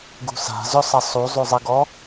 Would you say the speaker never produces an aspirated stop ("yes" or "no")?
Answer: yes